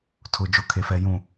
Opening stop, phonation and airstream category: aspirated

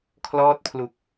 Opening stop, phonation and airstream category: aspirated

